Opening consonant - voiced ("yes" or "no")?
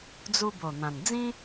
yes